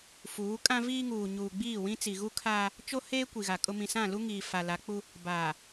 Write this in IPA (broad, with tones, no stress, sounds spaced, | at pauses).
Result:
f uː˨˦ kʼ ã˦ v iː˦ ŋ uː˨ ɲ uː˨ ɡ͡b iː˦˨ w ĩ˦ t͡s i˨ ɣ u˦ kʰ aː˦ | t͡ʃ o˦ h eː˦ kʷ i˨ ɣ a˨ kʼ ʊ˦ m ĩ˨ s ã˦˨ l u˦ ŋ iː˨ f a˨ l a˨˦ k͡p u˦ | b aː˨